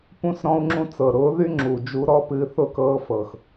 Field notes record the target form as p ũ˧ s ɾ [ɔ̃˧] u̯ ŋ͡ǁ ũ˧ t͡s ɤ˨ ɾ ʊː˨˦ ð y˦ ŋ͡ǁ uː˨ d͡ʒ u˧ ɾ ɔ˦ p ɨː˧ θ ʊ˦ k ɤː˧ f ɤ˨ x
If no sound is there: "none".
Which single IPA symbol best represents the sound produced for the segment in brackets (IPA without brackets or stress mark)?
ɔ̃˧